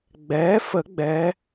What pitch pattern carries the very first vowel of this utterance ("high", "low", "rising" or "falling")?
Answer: rising